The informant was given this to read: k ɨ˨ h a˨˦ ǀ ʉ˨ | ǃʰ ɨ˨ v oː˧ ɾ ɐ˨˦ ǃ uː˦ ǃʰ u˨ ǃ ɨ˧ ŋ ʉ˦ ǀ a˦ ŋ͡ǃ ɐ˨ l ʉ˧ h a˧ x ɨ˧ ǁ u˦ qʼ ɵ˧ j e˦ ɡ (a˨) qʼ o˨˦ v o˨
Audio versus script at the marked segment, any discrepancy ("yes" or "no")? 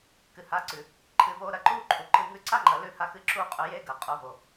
yes